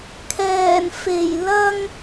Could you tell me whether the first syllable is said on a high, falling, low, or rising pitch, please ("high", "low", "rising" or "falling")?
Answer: low